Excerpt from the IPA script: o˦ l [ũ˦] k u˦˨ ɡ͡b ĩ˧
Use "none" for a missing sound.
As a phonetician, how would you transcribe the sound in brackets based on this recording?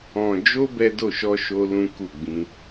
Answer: ũ˦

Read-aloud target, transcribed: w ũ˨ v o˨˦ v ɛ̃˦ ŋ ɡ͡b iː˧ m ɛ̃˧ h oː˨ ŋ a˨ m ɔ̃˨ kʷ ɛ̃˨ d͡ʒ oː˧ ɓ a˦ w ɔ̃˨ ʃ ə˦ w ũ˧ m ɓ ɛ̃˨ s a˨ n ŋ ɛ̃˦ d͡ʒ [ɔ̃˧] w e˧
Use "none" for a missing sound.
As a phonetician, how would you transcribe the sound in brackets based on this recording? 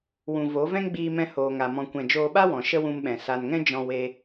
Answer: ɔ̃˧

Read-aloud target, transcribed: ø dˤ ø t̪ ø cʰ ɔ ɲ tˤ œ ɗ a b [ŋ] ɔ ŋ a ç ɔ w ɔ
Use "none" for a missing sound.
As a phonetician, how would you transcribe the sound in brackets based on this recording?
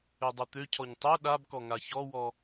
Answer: k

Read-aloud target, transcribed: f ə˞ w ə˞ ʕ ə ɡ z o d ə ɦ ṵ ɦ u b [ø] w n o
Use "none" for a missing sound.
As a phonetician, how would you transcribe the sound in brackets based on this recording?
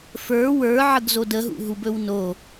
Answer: ɵ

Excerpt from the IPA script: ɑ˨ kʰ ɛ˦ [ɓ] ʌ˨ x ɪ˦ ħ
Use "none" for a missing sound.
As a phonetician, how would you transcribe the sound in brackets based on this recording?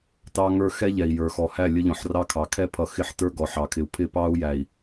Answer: pʰ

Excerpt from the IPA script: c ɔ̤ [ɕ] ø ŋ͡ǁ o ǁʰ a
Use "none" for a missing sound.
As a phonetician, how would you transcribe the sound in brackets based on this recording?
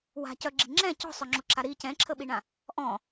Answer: sˤ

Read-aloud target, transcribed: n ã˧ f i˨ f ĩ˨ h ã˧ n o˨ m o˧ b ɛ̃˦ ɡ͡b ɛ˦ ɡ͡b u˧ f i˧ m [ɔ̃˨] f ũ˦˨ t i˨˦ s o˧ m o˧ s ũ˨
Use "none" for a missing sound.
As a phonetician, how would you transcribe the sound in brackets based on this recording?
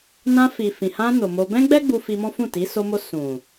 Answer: ɔ̃˦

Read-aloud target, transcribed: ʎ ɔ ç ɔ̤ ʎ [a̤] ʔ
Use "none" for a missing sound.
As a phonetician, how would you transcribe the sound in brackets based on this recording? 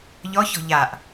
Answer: a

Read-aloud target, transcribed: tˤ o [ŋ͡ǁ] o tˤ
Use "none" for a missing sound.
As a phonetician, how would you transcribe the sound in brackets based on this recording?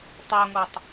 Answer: ŋ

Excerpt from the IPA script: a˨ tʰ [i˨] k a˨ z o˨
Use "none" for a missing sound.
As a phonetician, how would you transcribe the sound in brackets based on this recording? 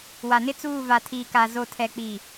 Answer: iː˨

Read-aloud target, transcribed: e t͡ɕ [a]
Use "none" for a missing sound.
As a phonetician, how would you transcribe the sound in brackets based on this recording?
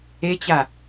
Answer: a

